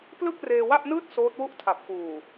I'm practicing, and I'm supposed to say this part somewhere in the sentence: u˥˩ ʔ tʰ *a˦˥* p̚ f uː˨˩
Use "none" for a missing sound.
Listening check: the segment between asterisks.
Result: a˨˩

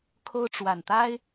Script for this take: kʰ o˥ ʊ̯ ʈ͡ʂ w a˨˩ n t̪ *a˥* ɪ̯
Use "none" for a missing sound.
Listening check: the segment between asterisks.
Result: a˥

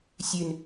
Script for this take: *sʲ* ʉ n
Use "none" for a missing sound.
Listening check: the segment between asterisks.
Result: sʲ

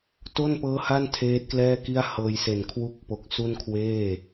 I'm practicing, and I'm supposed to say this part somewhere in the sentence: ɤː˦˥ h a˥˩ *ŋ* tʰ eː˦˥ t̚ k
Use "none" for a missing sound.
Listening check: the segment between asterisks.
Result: n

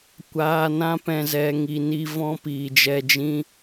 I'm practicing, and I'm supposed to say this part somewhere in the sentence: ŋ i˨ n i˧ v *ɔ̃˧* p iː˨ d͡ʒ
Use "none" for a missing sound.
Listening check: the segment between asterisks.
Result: ɔ̃˧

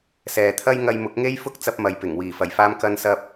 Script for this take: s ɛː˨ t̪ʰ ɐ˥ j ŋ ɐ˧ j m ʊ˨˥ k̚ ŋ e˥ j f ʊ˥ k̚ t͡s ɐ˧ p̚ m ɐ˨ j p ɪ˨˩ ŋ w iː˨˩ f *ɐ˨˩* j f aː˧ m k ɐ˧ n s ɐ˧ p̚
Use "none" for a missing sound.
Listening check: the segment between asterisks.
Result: ɐ˨˩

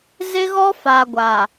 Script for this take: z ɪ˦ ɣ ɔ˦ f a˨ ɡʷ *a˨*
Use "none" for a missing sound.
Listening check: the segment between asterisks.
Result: a˨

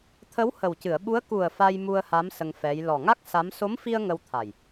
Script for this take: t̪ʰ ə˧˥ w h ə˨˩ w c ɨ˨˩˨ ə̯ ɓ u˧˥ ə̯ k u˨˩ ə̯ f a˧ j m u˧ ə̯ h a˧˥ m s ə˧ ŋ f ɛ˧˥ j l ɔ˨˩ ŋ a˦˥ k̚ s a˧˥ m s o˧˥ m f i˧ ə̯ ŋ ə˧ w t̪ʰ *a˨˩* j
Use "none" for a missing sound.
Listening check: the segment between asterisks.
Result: a˨˩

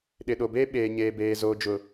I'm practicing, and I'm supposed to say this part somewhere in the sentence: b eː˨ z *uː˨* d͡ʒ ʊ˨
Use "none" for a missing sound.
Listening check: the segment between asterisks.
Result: oː˨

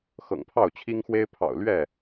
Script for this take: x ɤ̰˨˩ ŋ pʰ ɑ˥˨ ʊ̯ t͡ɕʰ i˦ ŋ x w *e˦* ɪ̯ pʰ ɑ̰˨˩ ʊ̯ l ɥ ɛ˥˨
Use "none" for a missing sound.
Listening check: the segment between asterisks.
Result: e˦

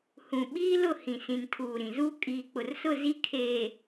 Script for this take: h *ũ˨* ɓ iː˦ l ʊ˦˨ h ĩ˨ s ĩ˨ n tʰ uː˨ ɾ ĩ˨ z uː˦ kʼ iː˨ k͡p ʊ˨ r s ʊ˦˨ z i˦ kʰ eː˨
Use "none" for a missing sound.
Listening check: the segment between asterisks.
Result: ũ˨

